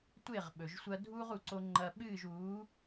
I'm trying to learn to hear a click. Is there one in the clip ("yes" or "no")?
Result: yes